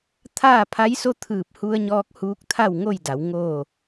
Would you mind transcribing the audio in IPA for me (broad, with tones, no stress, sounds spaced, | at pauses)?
t̪ʰ aː˥˨ pʰ a˧˥ j s o˥˨ t̪ʰ ɯː˧˩ p̚ h u˧ ə̯ ɲ ɔː˧ k̚ h uː˧˥ k̚ t̪ʰ a˥˨ w ŋ o˥˨ j d a˩˧ w ŋ oː˥˨